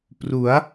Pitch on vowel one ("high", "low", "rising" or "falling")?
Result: rising